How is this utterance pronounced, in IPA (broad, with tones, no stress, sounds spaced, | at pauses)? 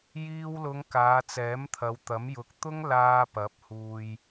j iː˧ w l ʊ˨˧ ŋ k aː˨˧ t͡s ɛː˨˥ m t̪ʰ ɐ˨˧ w t̪ ɐ˨˥ m j ʊ˨ k̚ t̪ ʊ˥ ŋ l aː˧ p ɐ˨˥ p̚ h uː˧ j